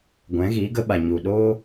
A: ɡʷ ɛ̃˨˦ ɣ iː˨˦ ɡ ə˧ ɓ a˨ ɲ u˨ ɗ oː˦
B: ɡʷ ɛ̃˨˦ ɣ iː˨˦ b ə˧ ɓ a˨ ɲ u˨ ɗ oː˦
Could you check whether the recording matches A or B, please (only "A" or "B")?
A